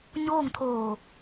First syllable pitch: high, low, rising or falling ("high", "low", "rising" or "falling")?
falling